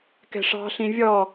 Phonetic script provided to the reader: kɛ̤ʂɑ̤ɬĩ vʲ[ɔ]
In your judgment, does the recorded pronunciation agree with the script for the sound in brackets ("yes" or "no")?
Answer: yes